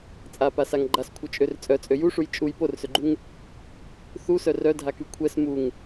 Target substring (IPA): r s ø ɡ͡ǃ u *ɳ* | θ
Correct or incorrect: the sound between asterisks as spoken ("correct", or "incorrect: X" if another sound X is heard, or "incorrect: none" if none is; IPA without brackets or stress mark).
incorrect: ŋ